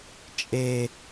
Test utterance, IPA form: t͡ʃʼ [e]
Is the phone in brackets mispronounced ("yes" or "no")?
no